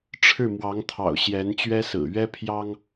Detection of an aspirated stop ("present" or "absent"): present